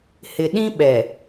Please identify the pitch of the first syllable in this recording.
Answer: low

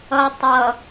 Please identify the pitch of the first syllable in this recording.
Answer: low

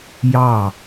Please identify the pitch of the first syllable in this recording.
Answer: falling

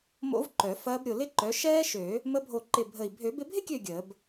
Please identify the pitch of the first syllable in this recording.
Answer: rising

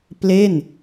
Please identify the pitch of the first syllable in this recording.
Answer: falling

